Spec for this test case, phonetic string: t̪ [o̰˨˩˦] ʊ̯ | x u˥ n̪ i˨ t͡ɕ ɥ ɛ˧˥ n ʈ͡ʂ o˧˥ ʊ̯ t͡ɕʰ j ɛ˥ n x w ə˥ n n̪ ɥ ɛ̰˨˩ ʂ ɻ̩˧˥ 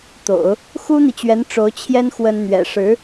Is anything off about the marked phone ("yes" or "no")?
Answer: no